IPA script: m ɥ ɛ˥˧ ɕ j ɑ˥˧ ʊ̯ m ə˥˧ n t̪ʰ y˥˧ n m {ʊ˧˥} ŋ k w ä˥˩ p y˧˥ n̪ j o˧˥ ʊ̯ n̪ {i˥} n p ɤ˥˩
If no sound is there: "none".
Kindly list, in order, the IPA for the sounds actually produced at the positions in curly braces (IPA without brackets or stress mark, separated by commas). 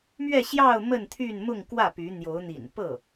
ʊ˥˧, ḭ˨˩